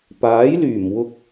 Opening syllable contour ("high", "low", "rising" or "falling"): rising